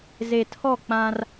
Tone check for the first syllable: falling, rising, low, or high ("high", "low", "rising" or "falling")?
low